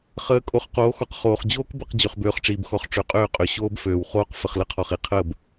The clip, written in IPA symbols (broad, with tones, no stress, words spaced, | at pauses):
χəː˨˦ kʼo˨χqoː˨˦xɔ˨q χoː˨χ d͡ʑoː˦kbə˦˨q d͡ʑø˨χbøː˨χʈ͡ʂiː˨bxɔ˨χ ʈ͡ʂø˨qʼøː˦˨qʼø˨ ɕoː˦bføː˨wχoː˦q fə˨χlə˦qʰɔ˨χ i˨ qʰəː˦˨b